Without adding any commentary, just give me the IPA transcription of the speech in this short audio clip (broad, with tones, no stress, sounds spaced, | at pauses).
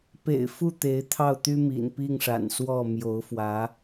p ḛ˨˩ ɪ̯ f u˥˩ t̪ e˧˥ ɪ̯ t̪ʰ ɑ˥˩ ʊ̯ t̪ y˥ m ḭ˨˩ n p i˥˩ ŋ ʂ a̰˨˩ n s w ɔ˥˩ m j o˧˥ ʊ̯ f w ä˧˥